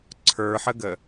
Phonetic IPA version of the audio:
ǀʰə˞ħəɡə

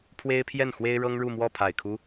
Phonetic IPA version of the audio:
pʰwe˥ɪ̯pʰjɛ˥˩n xwe˥ɪ̯ɻɤ˥ŋ ɻu˥˧mwɔ˥˩ pʰa˨˩ɪ̯kʰu˦

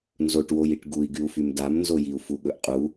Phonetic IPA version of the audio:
nzoʈwojiʈ ɡui̯ɡyu̯fym damnzojiu̯ fuɠɵʔqʼu

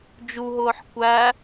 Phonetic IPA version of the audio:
d͡ʒuɦʊːħ kʷæ

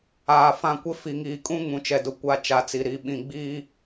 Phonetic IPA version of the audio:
aː˨fã˦˨ kʷɪ˦fi˨ŋiː˨kʼũ˦ ŋũ˨t͡ʃɛ˨dʊ˨ kʷa˦t͡ʃa˨˦t͡si˨ ɾi˨ɓĩ˨ ɡ͡biː˦

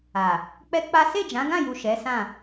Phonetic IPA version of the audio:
a˨ | k͡pɛ˦k͡pa˦ se˦˨d͡ʒã˨˦ɡã˦˨ju˨ ʃɛ˨˦sã˦˨

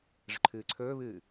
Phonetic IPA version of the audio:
ʐə̤ǃʰɨːǀʰɵːβɨː

